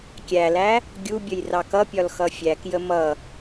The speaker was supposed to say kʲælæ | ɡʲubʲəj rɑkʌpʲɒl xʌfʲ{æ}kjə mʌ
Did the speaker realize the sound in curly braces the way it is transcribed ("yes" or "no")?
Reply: yes